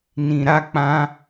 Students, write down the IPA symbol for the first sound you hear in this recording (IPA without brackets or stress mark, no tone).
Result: n